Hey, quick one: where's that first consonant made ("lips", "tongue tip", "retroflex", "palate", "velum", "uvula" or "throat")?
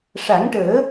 retroflex